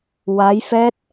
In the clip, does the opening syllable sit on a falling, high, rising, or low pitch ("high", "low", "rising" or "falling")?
rising